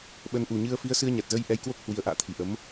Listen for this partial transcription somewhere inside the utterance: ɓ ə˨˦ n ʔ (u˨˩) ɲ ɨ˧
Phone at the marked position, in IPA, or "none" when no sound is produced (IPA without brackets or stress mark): u˨˩